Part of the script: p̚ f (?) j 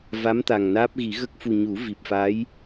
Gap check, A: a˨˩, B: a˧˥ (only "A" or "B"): B